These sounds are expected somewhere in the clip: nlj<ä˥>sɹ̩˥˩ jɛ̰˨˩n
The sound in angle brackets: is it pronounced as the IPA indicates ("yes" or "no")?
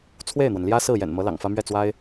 yes